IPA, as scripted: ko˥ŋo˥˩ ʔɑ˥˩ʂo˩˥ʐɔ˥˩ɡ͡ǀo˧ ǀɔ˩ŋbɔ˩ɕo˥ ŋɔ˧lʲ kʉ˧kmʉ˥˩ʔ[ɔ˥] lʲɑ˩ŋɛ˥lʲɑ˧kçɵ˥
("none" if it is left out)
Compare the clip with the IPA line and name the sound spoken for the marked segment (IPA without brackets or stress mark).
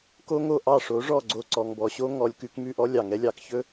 ɔ˥